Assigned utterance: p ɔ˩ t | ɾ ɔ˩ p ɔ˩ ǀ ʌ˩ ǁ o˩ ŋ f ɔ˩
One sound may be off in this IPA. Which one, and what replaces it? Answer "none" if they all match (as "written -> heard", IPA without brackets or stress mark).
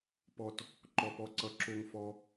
ɾ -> ǃ